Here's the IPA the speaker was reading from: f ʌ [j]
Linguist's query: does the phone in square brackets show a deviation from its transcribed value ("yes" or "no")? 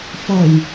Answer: no